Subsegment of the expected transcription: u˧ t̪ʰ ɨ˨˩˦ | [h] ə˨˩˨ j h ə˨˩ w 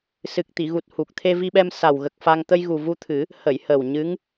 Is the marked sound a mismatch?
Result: no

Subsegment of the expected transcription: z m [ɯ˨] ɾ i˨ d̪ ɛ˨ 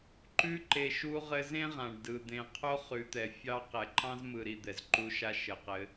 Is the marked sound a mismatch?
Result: no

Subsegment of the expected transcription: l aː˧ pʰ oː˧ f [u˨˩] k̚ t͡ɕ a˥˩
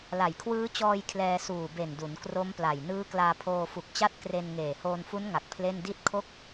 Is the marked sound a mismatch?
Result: no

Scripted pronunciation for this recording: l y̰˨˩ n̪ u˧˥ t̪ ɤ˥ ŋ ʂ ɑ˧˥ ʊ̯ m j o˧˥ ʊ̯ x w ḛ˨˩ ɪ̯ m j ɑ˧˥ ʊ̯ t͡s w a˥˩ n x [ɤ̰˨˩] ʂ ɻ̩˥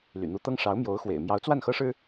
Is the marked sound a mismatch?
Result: yes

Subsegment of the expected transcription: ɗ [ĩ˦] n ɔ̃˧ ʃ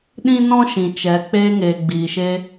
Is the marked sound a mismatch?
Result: yes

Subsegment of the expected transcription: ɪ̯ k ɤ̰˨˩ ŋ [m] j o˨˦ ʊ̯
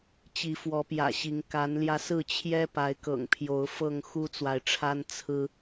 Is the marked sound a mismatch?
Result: yes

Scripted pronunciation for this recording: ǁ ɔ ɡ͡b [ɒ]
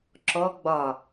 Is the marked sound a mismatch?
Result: no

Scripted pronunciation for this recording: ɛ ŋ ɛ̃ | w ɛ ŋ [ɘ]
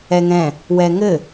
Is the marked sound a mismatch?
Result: no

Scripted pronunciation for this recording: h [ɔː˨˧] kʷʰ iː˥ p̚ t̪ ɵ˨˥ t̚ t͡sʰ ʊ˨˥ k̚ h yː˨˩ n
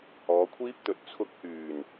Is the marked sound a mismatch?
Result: no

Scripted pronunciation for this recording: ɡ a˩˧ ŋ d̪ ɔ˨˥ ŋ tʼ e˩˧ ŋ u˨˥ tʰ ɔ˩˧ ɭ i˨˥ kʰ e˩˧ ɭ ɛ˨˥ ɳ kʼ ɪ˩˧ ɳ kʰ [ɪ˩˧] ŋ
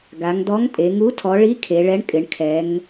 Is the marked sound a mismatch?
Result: yes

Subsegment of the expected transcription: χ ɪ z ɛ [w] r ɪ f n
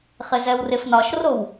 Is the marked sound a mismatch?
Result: no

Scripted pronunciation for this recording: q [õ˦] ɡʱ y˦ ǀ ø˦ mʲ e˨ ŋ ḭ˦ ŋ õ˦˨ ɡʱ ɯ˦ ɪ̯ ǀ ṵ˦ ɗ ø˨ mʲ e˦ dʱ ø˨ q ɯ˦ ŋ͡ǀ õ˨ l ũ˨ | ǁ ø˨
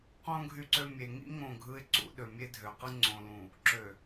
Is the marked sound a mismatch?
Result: no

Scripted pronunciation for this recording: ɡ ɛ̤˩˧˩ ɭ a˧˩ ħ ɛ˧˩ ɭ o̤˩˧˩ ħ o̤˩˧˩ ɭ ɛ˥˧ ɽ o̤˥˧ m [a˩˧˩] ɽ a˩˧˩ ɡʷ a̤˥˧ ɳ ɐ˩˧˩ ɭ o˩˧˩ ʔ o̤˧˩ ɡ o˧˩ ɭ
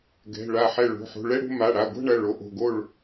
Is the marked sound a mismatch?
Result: no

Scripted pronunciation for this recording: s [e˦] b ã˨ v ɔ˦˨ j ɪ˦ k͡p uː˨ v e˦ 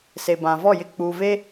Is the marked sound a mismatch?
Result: yes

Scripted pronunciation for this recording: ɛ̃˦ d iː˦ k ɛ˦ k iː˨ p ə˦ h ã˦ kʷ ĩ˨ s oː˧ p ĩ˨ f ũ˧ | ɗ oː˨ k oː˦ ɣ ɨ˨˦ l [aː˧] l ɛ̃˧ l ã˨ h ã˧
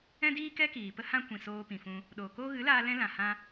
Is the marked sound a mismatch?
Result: no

